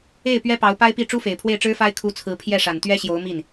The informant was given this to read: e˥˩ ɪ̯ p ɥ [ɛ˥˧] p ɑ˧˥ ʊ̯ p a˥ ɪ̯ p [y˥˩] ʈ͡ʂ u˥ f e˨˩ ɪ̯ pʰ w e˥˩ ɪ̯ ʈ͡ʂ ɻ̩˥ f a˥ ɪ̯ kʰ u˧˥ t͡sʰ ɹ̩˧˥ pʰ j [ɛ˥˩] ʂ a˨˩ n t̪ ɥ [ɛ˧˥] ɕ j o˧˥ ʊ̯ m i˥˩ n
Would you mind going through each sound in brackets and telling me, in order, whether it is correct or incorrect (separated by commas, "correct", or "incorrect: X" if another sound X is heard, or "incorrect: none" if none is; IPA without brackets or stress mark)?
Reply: incorrect: ɛ˥, incorrect: i˥˩, correct, incorrect: ɛ˥